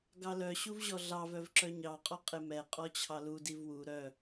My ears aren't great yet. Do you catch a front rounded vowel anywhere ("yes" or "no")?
yes